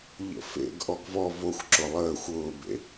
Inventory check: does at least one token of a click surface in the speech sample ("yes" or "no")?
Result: yes